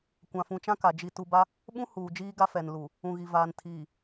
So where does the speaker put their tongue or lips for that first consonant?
velum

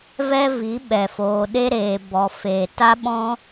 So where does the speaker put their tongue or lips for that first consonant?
lips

